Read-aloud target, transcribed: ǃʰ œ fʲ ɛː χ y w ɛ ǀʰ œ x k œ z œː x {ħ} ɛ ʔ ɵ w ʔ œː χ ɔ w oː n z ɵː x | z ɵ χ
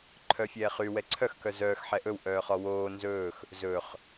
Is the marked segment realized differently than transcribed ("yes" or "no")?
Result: no